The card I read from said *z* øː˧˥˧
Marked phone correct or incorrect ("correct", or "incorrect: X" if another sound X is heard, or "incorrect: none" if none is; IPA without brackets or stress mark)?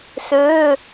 incorrect: s